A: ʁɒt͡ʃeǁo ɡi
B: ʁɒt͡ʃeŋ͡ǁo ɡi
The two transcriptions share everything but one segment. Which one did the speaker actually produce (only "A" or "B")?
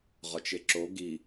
A